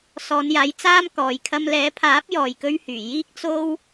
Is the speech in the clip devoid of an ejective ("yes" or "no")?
yes